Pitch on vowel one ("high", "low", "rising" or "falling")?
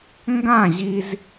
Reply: falling